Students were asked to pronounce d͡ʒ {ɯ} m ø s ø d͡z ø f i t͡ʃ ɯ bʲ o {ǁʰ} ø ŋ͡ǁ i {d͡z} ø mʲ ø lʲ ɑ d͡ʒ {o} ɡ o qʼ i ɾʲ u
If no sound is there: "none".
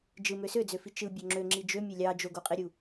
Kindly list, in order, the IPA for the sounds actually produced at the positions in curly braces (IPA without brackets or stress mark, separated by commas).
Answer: ɯ, ŋ͡ǁ, d͡ʒ, o